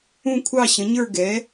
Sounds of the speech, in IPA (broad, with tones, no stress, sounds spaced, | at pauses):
ũ˥˧ kʷʰ ɑ˥˧ ɕ ə̃˨˥ ɲ ə˞˥˧ ɡ ɛ˨˥